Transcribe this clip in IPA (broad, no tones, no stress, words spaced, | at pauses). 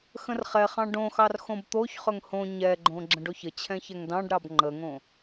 xə̃rχɛχɑ̃ ɖõxɑr xõbt̪oçχɵŋ hõ ɲɛɡ͡ǃõ ɡ͡ǁə̃ɖoçət͡ɕʰɛ̃ çɛŋdɑ̃ɖɾɑb ŋ͡ǃəŋõ